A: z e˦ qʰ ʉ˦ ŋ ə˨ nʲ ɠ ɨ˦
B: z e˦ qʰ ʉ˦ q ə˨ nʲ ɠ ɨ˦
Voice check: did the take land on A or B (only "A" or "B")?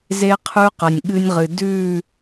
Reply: B